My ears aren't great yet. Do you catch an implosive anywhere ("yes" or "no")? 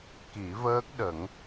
yes